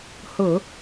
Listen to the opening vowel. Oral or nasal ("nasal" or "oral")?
oral